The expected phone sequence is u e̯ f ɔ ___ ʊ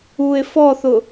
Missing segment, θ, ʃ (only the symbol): θ